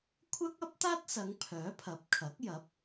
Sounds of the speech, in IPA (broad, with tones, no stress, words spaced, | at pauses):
kʷʰɐ˥k̚ɐ˥p̚t̪aː˥t̚sɐ˨˧ŋ pʰœː˨˥pʰɐ˨˥p̚kʰɐ˨˥k̚jɐ˨˥p̚